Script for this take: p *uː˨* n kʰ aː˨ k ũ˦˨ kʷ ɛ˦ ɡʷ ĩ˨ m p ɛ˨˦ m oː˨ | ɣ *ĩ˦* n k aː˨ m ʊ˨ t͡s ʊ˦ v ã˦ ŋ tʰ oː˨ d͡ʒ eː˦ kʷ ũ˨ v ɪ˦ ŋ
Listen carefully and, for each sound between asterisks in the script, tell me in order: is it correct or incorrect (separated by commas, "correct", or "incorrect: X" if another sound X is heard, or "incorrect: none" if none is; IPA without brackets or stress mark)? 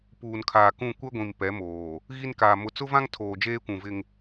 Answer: correct, incorrect: i˦